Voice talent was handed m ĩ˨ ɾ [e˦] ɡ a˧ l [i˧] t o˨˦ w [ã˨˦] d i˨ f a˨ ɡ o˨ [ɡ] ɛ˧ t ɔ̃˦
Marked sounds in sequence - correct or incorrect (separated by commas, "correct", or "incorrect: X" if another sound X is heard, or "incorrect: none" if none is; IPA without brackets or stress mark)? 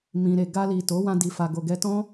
incorrect: e˨, incorrect: i˨, incorrect: ã˧, correct